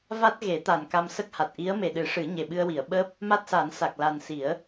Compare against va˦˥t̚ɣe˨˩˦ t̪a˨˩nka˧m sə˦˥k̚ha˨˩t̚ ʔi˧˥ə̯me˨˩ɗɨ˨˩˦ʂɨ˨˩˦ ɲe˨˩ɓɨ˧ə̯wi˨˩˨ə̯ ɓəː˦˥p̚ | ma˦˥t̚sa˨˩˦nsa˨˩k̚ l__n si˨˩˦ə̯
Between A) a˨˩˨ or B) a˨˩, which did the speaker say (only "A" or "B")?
B